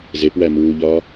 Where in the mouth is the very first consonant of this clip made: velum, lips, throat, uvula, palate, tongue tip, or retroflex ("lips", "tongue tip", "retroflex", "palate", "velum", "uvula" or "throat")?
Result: tongue tip